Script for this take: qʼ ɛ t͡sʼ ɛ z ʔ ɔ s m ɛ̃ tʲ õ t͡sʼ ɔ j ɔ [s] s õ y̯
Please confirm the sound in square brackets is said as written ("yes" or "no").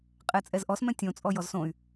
no